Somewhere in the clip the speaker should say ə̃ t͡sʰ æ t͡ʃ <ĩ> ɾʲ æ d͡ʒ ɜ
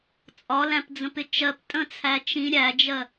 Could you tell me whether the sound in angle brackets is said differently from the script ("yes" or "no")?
no